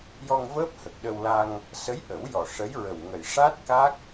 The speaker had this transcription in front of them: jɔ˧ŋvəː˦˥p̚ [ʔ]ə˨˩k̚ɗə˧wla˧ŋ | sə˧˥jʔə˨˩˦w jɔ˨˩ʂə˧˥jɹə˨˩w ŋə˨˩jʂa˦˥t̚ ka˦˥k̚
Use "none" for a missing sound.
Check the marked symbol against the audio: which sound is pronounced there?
h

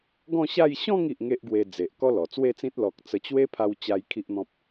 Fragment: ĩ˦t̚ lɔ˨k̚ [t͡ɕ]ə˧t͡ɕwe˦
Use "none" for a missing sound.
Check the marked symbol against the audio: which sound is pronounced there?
t͡s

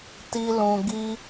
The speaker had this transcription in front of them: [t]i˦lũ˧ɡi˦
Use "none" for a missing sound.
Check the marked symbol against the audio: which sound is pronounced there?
t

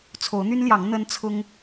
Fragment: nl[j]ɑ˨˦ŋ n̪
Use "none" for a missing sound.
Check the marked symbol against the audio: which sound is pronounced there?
j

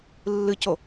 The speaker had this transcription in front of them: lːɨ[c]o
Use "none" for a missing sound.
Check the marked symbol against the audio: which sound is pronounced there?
c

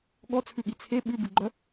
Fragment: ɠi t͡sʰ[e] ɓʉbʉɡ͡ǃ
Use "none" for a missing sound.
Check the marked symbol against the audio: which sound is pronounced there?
e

